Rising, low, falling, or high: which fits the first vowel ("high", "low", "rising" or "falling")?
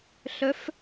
rising